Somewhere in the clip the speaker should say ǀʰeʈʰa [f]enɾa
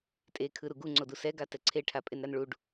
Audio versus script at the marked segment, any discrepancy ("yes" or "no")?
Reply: yes